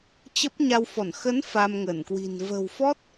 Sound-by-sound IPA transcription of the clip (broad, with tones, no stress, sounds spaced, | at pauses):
t͡ɕ ə˦˥ p̚ ɲ a˧ w f ɔ˧˩ n x ə˨˦ n f a˧ m ŋ ə˧˩ n k w i̤˨˩ n v ə̤˨˩ w f ɔ˦˥ t̚